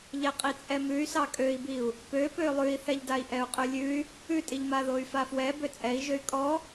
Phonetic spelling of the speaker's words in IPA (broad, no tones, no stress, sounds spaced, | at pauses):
ʎ ɛ qʼ i t͡sʼ ɛ m ʉ y̯ s ɑ kʼ ø i̯ b i u̯ | p ø p ø lˠ ʉ i̯ θ ɛ ʎ d a i̯ ʔ ɛ u̯ qʼ ʉ lʲ ʉ y̯ | ʉ tʼ i ʎ m a ð o y̯ f a f w ɛ b ø t͡sʼ ɛ i̯ ʒ ø y̯ kʼ ɔ